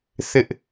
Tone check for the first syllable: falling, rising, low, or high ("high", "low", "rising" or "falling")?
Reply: high